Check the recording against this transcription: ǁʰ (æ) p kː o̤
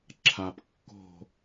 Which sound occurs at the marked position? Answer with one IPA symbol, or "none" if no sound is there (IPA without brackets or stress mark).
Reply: a